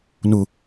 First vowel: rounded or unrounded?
rounded